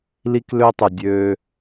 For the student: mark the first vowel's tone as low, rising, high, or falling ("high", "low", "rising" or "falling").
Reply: high